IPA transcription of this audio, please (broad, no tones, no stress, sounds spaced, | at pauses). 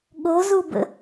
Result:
ɠ o z u b ə̰